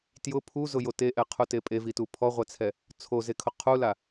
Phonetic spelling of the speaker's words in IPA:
t j ʊ pʰ u z ʊ j o t e ʔ ɛ qʰ u t e pʼ e v i t u pʰ ɔ ʁʷ ɛ t͡sʰ ɛ | t͡sʰ o z e kʰ ʊ qʰ u l a

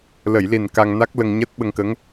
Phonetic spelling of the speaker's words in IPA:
l ə˨˩˨ j l i˨˩ n k a˧ ŋ n a˦˥ k̚ l ə˧ ŋ ɲ əː˦˥ t̚ ɓ ə˧ ŋ k ə˧˥ ŋ

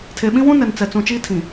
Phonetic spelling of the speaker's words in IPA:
tʰ e˨ ɓ ĩ˦ w ũ˦ n ɛ˨ n t͡s ɛ˨ t͡s ũ˨ t͡ʃ iː˦ tʰ ĩ˨

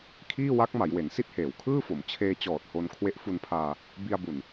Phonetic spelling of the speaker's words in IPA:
kʰ iː˥˩ w a˦˥ k̚ m a˩˦ j w e˩˦ n s i˥˩ t̚ h eː˩˦ w kʰ ɯː˥˩ f o˩˦ m t͡ɕʰ eː˧ t͡ɕ ɔː˨˩ t̚ h o˧ n kʰ w e˦˥ ʔ f u˧ n pʰ aː˧ | b i˧ a̯ b u˨˩ n

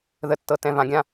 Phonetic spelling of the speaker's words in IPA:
ð ə˨ tː ɤ˨ t ɛ̃˨ v ã˨ ɡʲ ã˦

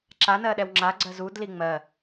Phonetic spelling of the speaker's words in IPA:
ǁ a n ɜ ɗ ɛ w ŋ͡ǁ a ɡ͡ǀ ɜ z u d l i ŋ͡m ɜ

